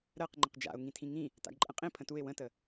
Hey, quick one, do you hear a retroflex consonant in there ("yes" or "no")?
no